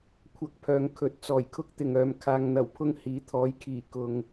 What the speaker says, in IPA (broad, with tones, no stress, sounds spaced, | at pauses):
kʷʰ ɐ˧ k̚ pʰ œː˨ ŋ kʰ ɵ˨˥ t̚ t͡s ɔː˨˩ j kʰ ʊ˥ k̚ t̪ ɪ˨ ŋ œː˨˧ m kʰ aː˨ ŋ n̪ ɐ˨˩ w pʰ ʊ˧ ŋ h iː˨˥ t̪ʰ ɔː˨˥ j kʰ iː˨˩ k ʊ˨ ŋ